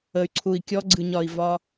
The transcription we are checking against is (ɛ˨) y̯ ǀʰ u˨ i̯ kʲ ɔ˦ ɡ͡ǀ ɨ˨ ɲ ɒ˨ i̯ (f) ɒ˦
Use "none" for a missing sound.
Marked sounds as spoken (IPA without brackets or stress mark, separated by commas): ə˨, v